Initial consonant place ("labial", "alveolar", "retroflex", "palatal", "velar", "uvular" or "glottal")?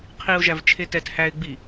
uvular